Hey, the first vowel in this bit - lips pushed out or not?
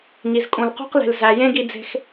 no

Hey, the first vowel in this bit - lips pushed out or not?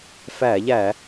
no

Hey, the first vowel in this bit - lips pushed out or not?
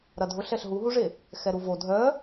no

